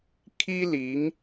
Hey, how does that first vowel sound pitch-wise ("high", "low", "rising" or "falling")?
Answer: high